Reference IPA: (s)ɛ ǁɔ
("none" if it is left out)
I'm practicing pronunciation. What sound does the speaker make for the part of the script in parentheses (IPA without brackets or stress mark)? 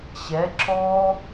ɕ